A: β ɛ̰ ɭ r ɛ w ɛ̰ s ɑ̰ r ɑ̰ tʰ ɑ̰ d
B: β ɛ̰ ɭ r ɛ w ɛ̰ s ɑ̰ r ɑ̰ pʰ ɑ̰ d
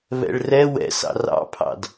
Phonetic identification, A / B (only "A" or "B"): B